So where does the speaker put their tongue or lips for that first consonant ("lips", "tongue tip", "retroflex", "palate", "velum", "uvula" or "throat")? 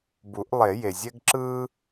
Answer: lips